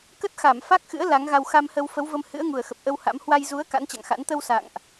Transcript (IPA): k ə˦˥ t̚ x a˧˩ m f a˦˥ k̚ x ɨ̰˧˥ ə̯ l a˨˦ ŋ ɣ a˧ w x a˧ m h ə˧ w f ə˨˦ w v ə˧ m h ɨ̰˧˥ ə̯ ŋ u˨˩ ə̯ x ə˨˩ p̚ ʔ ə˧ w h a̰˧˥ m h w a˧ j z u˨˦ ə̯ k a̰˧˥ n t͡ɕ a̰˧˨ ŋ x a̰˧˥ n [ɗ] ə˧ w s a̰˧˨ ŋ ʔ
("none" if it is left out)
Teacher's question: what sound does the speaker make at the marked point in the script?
t̪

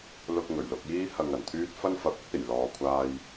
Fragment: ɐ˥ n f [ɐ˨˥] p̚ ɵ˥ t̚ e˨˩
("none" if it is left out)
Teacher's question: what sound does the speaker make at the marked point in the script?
ɐ˨˥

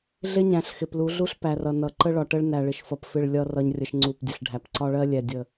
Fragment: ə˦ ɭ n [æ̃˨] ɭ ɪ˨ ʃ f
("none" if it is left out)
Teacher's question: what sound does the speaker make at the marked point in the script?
æ˨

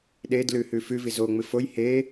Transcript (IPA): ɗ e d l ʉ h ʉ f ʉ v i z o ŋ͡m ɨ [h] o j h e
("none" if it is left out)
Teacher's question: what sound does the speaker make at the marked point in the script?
f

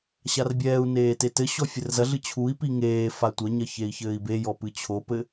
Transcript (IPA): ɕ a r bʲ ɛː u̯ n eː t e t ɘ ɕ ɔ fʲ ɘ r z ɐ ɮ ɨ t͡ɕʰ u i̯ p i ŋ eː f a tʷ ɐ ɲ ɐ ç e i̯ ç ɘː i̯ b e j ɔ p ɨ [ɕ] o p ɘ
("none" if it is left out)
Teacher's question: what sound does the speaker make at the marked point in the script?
t͡ɕʰ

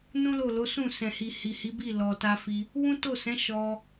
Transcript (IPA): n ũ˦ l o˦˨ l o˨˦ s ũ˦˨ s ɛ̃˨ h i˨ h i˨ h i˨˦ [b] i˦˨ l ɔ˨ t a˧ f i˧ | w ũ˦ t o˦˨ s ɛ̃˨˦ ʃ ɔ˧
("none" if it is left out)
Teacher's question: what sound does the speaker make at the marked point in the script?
b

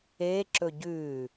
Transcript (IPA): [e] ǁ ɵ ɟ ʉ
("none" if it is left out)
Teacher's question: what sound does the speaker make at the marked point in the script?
e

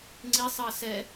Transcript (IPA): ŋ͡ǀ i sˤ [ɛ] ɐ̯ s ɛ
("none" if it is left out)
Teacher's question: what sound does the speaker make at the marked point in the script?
ɨ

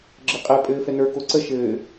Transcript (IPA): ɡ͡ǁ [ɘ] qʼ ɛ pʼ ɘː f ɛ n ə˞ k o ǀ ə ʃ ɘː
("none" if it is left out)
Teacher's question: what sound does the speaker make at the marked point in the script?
ɘ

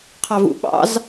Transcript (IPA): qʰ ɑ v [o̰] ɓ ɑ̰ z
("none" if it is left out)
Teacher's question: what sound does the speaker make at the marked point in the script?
ṵ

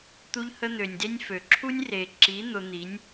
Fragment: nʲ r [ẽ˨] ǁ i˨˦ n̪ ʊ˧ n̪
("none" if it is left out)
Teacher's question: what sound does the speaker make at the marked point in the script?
e˨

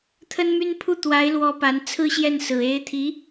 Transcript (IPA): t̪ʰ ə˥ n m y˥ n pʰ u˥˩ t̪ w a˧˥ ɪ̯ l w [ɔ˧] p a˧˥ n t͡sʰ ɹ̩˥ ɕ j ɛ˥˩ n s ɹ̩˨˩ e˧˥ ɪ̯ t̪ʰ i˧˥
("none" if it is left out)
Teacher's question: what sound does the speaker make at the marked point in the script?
ɔ˧˥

